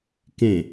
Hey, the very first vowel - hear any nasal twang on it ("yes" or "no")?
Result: yes